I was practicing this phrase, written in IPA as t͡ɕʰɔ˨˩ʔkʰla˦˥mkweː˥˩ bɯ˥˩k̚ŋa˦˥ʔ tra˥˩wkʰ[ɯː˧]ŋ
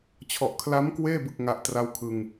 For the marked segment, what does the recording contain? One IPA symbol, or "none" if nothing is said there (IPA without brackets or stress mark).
ɯ˧